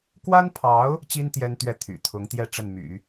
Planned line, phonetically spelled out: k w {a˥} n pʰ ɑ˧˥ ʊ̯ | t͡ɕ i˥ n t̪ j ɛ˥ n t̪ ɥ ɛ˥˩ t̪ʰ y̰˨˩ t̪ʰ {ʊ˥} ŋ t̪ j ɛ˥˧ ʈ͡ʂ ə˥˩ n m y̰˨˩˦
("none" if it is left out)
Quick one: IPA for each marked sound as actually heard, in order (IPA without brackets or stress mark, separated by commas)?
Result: a˥, ʊ˧˥